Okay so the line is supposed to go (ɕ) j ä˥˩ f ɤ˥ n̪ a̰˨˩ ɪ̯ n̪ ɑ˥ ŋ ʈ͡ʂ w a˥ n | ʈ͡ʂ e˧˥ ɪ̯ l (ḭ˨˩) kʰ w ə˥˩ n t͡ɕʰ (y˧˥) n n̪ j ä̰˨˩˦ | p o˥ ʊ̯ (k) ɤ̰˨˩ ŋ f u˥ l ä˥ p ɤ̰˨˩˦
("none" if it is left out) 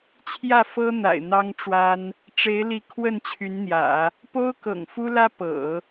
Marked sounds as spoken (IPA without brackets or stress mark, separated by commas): t͡ɕʰ, i˧˥, y˧˥, k